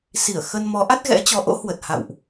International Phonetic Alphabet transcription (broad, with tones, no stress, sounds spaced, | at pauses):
s i˧˩ ə̯ x ə˧ n m ɔ˨˦ ʔ a˦˥ t̚ ɣ ɛ̰˧˥ t͡ɕ ɔ˨˦ ʔ o̰˧˥ h w ə˨˩ t̚ h a̰˧˨ w ʔ